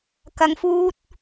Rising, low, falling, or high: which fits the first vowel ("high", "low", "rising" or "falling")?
low